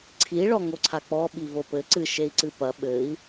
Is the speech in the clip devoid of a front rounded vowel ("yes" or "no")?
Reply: yes